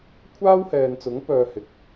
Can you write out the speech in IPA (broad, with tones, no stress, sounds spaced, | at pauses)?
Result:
kʷʰ aː˥ w h ɛː˨ n t͡s ʊ˨˥ ŋ p œː˧ h ɪ˨˥ k̚